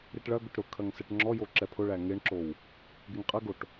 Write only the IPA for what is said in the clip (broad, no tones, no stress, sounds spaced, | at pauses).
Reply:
ɾ i ʈ ɭ ɐ ɡ ʊ ʈ ɾ ʊ kʰ ɐ ŋ s ɛ ʈ ŋ͡ǁ ɔ j o ǁ ɛ pʰ ʊ ɭ æ ŋ e ɳ ǁ o w | ɡ e ŋ qʼ ɐ ɡ o ʈ